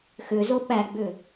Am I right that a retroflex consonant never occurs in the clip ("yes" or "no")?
yes